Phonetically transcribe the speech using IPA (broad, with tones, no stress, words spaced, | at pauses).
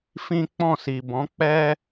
fĩ˦ k͡pɔ̃˦˨si˨bɔ̃˨˦ k͡pɛ˦